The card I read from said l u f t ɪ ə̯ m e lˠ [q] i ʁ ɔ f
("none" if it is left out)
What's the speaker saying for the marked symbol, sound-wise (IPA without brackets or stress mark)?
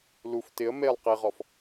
q